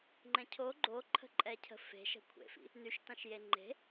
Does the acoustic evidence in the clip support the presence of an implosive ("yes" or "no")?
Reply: no